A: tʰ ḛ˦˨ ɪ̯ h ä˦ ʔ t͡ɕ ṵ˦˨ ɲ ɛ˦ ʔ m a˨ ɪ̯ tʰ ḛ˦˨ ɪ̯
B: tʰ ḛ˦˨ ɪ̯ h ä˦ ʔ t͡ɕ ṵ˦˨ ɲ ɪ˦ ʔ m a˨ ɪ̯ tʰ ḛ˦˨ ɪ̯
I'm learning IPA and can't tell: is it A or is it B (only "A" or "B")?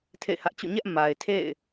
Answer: A